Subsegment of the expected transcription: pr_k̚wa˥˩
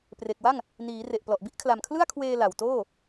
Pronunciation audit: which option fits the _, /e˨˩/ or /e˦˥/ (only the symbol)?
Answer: e˨˩